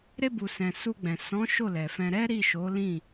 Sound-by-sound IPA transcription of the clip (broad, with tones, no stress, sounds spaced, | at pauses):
ɾ e˧ b u˨ s ɛ̃˨ s u˧ ɡ͡b ɛ̃˨ s ɔ̃˨˦ ʃ o˦˨ l ɛ˨ f ɛ̃˧ ɾ ɛ˦ ɾ i˦˨ ʃ o˨˦ l ĩ˦˨